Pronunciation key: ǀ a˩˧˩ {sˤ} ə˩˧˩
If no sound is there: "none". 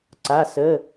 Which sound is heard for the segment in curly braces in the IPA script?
s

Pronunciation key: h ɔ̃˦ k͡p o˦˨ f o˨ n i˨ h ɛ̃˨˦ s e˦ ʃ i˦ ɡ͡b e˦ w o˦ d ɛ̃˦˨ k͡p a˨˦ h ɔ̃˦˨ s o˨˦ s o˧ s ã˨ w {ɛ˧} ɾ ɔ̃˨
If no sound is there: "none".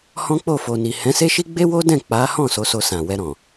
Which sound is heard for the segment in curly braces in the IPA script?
ɛ˧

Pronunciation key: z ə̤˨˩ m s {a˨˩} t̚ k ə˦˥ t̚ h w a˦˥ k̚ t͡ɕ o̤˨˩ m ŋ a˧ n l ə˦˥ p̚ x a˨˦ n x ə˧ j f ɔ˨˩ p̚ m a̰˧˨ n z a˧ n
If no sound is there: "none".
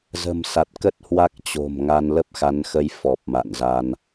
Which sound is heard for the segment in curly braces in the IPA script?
a˨˩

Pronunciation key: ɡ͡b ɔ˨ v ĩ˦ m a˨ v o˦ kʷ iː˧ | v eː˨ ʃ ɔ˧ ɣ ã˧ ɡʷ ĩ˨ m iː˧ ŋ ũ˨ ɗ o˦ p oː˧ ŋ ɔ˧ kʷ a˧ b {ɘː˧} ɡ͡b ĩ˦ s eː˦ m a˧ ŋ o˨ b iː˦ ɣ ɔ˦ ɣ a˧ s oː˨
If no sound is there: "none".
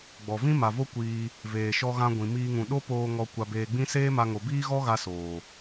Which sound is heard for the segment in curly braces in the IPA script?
eː˧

